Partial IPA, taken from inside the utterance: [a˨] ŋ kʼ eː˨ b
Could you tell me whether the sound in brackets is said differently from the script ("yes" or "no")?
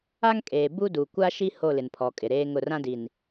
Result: yes